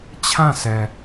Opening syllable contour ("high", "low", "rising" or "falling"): falling